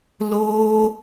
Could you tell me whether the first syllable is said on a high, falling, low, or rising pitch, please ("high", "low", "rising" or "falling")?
high